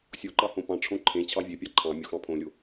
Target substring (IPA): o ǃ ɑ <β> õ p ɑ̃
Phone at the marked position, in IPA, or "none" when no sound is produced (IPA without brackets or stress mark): h